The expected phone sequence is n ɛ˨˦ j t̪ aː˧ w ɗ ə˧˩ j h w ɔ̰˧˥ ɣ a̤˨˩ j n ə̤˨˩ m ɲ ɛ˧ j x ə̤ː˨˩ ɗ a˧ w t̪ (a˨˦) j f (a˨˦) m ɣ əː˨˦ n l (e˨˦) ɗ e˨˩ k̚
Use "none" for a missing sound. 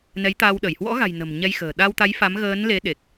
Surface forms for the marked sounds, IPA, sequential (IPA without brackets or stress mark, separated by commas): a˨˦, a˨˦, e˨˦